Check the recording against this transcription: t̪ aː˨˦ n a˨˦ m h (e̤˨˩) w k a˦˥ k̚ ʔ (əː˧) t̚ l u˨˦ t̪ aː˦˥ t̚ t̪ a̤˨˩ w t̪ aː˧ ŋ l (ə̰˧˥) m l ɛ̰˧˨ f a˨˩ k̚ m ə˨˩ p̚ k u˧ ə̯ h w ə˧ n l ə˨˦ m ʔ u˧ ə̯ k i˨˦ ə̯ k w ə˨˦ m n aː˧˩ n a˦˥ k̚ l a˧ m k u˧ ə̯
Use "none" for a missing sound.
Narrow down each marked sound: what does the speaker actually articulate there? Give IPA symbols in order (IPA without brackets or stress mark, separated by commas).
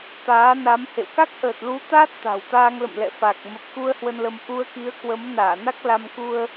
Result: ḛ˧˨, əː˨˩, ə̰˧˨